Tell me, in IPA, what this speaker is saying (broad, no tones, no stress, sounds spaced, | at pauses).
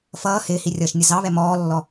f ʌː h ɪː h i rʲ ʌː ʃ nʲ ə z ɑ β ɛ m ɔː lː ɔ